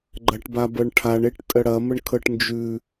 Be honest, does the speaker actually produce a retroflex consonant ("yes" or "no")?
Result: yes